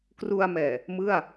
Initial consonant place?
velar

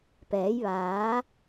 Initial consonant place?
labial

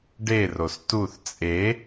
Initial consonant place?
retroflex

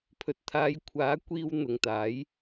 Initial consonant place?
labial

